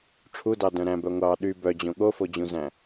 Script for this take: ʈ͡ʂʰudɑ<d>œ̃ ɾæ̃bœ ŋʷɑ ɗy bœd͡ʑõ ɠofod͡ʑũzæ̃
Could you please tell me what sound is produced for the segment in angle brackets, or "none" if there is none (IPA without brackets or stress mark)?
d